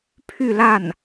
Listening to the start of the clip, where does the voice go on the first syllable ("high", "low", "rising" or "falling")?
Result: falling